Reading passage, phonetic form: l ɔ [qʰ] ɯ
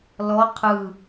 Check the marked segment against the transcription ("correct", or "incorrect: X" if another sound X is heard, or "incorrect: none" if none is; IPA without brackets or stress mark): correct